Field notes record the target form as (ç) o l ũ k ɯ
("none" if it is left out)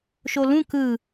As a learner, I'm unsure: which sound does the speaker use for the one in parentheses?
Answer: ʃ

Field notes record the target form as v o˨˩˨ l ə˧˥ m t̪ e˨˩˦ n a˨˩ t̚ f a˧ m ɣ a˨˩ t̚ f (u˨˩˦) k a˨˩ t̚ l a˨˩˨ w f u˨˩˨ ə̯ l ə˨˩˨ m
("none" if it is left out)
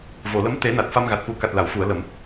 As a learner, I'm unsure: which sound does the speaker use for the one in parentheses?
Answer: u˨˩˦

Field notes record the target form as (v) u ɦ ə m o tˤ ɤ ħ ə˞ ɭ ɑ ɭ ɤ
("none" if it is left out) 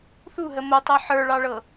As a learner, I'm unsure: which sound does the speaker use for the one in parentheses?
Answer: θ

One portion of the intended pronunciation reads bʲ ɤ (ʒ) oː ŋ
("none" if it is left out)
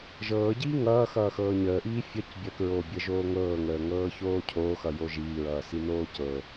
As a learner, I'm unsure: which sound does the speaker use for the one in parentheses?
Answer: ʒ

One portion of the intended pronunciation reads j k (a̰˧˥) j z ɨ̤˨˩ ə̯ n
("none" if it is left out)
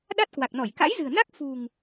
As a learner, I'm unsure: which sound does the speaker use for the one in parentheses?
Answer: a̰˧˥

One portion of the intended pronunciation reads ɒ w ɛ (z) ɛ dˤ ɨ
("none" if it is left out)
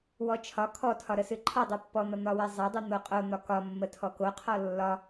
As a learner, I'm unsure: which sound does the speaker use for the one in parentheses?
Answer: zˤ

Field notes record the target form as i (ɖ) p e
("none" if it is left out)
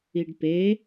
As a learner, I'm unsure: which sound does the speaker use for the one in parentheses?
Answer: ɖ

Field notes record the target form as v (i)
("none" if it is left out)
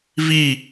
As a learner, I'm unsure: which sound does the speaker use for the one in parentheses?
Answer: i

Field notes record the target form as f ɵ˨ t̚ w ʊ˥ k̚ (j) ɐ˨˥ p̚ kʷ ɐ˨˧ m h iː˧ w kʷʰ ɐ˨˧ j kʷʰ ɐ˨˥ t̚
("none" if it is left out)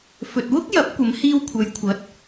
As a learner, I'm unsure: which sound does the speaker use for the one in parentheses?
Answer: j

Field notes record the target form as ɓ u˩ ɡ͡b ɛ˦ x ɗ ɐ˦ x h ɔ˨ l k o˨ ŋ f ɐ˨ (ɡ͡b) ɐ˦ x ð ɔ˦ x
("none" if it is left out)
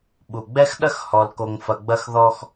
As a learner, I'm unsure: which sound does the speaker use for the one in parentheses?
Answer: ɡ͡b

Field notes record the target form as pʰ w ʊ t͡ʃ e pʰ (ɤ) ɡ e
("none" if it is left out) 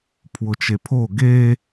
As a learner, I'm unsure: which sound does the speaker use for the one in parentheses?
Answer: o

